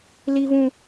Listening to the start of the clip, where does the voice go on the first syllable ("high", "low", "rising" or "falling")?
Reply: high